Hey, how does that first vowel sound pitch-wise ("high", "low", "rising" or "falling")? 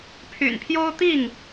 low